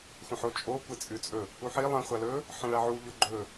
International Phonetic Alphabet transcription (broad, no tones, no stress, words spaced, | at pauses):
xʷɐ̃ħo t͡ʃʼo kʷet͡sʼʉt͡sʼɵ | uħi lˠɐ̃ χʷalɵ | ħɐ̃ɭaʕu ʎoɡ͡ǃɵ